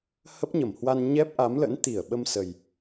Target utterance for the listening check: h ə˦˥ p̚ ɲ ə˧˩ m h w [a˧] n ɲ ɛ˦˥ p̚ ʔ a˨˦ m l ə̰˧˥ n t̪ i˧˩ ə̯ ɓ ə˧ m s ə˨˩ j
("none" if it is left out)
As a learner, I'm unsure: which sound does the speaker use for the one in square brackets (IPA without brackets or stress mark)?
a˧